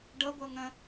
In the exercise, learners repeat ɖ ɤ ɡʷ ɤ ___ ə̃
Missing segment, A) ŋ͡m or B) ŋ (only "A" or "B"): B